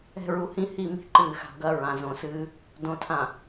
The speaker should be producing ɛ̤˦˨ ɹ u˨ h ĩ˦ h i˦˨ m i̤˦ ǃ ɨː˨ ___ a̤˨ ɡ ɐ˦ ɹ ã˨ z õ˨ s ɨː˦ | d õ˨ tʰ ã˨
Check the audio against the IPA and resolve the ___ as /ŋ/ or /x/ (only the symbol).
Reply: x